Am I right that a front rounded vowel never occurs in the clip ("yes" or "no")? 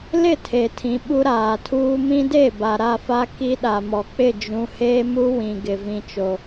yes